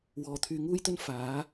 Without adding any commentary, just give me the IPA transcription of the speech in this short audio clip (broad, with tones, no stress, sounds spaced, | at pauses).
w ɔː˨ t̪ʰ yː˧ ŋ uː˥ j t̪ ɵ˥ n f aː˨˥